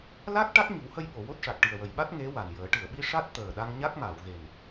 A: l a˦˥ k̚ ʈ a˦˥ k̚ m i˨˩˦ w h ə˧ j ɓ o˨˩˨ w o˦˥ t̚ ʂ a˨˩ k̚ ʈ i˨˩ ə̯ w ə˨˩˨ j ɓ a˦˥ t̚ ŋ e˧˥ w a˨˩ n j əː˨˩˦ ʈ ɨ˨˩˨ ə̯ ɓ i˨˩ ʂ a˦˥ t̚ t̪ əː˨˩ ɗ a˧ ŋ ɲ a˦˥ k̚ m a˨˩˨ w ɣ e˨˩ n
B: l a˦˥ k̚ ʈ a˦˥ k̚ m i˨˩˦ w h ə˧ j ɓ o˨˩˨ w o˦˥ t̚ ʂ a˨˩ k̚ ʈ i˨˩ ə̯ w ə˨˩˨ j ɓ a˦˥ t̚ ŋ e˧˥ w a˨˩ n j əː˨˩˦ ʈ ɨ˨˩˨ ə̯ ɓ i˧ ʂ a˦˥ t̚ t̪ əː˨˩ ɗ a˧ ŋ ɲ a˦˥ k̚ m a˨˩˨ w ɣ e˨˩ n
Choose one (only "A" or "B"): B